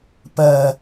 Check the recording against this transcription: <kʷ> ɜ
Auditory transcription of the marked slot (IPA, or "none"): p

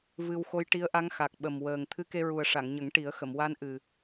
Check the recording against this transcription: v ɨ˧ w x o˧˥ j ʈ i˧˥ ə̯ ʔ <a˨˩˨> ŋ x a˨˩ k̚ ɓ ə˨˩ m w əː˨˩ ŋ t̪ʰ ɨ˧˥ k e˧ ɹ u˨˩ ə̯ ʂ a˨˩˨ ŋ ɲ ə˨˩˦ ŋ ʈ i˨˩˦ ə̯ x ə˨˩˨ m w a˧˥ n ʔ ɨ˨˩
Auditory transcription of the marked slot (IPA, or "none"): a˧˥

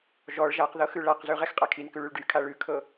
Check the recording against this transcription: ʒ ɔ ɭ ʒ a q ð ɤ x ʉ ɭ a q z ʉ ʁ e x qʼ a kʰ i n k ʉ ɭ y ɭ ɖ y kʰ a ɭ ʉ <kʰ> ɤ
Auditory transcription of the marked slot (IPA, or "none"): kʰ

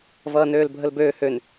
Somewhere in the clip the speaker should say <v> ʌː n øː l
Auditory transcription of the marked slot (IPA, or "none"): v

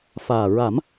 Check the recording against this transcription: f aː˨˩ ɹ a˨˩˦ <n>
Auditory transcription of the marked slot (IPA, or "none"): m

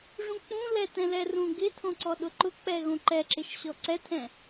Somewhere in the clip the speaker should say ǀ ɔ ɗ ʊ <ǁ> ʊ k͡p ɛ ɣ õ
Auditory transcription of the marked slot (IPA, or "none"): ǃ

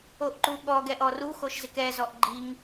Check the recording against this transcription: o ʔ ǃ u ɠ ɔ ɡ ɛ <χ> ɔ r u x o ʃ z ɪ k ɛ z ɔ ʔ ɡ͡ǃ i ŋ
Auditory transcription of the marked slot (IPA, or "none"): ʔ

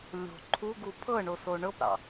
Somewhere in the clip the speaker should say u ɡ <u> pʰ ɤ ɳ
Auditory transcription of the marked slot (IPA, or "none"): u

